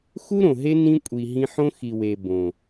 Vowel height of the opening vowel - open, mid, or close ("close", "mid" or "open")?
close